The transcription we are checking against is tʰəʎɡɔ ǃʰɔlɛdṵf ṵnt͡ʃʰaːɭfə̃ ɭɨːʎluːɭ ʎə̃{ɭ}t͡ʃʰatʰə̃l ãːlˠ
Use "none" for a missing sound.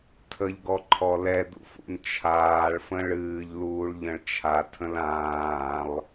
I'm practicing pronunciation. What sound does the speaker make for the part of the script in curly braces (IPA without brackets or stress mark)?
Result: ɭ